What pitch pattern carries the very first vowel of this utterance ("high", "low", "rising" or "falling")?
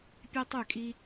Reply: high